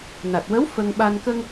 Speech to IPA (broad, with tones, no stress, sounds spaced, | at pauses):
n a˨˩ t̚ w ə˧˥ w f ə˧ ŋ ɓ a˧ n k ə˧ ŋ